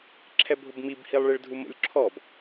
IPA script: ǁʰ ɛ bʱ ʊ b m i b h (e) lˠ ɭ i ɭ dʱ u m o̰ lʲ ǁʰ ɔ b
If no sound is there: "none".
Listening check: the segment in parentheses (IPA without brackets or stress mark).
i